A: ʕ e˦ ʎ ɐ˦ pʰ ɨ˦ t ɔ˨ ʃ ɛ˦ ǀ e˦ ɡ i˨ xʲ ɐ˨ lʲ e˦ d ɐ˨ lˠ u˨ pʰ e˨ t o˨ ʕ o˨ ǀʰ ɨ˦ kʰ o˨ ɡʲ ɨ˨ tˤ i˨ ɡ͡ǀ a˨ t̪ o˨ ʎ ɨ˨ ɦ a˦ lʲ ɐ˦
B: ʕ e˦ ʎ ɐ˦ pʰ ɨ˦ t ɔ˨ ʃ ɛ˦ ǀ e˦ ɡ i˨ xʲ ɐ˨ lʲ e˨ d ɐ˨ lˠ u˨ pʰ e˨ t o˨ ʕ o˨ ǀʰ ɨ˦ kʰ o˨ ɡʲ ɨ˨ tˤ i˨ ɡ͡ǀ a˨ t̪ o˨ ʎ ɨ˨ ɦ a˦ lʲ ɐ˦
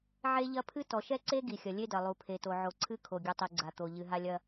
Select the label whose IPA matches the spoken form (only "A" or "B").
A